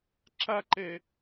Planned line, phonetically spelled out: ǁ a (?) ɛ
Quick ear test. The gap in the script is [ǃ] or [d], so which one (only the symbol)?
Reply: ǃ